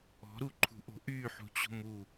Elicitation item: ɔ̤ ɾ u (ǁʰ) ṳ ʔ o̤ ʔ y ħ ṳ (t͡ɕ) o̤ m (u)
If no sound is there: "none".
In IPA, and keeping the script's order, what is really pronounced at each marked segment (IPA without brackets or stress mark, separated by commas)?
ǃʰ, t͡ɕ, u